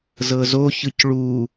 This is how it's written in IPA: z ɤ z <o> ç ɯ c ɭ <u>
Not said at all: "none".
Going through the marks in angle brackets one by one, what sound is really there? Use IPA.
o, u

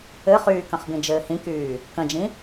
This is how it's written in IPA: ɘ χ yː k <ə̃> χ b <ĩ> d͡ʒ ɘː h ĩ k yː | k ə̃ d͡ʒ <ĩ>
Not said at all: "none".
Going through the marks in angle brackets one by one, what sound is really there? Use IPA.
ə̃, ĩ, ĩ

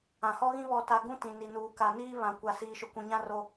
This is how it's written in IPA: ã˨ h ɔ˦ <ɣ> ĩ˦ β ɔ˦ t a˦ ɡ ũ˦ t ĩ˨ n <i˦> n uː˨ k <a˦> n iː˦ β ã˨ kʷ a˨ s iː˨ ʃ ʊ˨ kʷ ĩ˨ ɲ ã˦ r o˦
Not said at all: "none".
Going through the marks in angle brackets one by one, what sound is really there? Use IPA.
ɣ, i˨, a˨

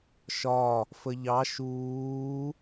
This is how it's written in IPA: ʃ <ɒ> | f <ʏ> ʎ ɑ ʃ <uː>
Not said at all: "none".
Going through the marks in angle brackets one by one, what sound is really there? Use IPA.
ɒ, ə, uː

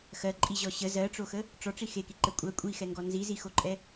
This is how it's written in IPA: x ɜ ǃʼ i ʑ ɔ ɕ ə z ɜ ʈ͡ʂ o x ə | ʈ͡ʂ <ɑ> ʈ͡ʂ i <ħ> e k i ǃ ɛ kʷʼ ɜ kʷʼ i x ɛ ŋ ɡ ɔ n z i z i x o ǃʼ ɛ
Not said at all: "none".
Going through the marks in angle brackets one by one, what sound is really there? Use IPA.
ɔ, x

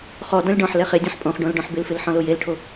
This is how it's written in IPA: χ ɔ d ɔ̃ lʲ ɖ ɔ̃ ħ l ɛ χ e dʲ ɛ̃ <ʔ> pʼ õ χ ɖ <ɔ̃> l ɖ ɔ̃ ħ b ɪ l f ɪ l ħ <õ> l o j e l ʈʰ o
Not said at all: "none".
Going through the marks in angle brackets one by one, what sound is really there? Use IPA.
ħ, õ, ɔ̃

